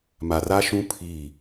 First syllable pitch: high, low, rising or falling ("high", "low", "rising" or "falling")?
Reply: low